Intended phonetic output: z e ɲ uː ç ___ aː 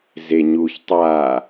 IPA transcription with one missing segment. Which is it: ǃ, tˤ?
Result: tˤ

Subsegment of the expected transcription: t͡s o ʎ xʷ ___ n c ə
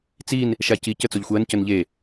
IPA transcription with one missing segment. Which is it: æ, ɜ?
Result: ɜ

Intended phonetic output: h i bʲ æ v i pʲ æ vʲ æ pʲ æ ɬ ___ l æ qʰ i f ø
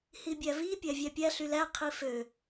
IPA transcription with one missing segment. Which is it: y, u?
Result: y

